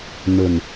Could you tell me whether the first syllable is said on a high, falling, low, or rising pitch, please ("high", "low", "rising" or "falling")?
low